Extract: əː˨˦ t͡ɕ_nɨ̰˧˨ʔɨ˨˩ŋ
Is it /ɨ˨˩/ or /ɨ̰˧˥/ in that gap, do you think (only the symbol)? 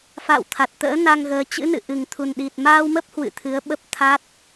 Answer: ɨ̰˧˥